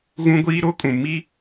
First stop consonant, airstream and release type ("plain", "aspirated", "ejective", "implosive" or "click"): plain